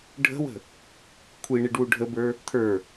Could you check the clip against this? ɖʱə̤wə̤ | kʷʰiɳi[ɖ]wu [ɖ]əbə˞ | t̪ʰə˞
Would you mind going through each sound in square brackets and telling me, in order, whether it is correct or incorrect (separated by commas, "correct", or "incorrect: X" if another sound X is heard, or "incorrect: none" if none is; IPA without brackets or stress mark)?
correct, incorrect: ɖʱ